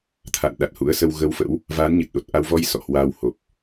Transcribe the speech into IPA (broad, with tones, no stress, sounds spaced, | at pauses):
t̪ʰ a̰˧˨ n ɗ a˨˩ t̚ h ṵ˧˥ ə̯ s ə˧ w ɣ ə˧ w f ə̰˧˥ w | v aː˨˦ n ɲ ɨ˨˩ t̚ ɗ o˨˩ t̚ ʔ a˧ w v ɔ˧ j s ɔ̰˧˨ h w aː˧ w h o˨˩ p̚